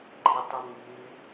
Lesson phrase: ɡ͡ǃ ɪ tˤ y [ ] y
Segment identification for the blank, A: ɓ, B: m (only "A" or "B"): B